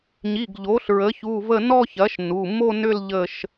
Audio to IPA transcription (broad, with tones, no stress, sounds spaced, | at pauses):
ɲ i˩˧˩ ɡ ʎ o˩˥ ɬ ɹ ə˩˥ ç u˩˧˩ v ə˥˧ n ɔ˥˧ ç ɐ˩˥ ʃ n u˩˧˩ m o˥˧ n ʏ˥˧ l ʎ ə˥˧ ʃ